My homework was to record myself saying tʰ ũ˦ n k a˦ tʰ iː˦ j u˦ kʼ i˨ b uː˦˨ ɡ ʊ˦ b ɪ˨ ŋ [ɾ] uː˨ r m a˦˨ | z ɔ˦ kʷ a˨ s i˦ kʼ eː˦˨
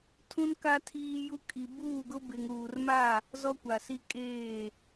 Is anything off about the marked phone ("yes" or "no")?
no